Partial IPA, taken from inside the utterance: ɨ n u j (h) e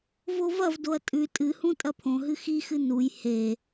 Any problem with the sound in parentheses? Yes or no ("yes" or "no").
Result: no